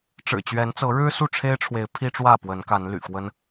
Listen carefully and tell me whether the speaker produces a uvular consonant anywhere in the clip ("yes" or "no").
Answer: no